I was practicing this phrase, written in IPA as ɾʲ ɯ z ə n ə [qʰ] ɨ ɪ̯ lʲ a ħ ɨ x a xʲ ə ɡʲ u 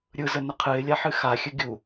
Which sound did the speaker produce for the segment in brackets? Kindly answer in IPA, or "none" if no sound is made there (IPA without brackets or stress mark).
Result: qʰ